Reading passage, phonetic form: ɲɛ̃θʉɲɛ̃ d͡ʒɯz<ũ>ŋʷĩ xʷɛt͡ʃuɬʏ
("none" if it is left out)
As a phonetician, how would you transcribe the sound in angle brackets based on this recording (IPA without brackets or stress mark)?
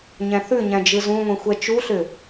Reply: ũ